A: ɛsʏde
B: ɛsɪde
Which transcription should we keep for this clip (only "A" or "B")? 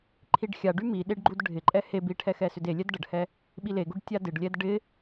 A